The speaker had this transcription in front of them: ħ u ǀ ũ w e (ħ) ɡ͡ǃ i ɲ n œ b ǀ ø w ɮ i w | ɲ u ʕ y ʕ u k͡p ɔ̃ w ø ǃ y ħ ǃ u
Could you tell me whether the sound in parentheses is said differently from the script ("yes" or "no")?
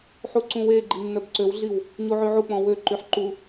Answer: yes